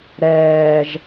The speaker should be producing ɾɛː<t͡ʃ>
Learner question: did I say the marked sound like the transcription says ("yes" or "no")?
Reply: no